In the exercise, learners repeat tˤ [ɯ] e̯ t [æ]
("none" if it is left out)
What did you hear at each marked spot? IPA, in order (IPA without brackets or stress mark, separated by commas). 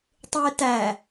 ɯ, æ